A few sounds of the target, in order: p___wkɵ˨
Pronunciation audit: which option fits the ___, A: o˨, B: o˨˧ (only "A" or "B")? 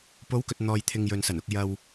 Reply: B